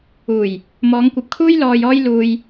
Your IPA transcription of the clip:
uː˨˩j | mɔː˨˧ŋkʷɐ˨p̚kʰuː˥j lɔː˧jɔː˥j luː˧j

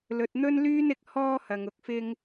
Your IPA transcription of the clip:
lɵ˨t̚n̪ɵ˥nlyː˥nɪ˨k̚ hɔː˥hɐ˨ŋ ʊ˨k̚fɪ˧ŋ

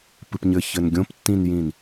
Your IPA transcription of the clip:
pɨpɲɘ çɘnɡʲõptːĩnjĩn

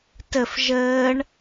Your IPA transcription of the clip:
təf ʒəːɳ

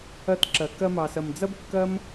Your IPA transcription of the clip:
ɐ˧tǁɐ˨ kɐ˧mɑ˨sɐ˨m d͡zɐ˦bkːɐ˦m

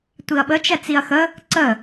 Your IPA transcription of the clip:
tʷiɐ̯ɓə t͡ʃɛt͡siɐ̯xə | ǀə

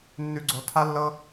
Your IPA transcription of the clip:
nːʉ˧ɡ͡ǀo˧tʰa˦lːɤ˦

